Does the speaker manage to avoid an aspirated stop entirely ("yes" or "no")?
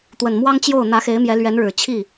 no